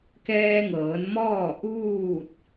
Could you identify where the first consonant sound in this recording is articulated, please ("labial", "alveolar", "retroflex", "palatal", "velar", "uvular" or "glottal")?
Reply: velar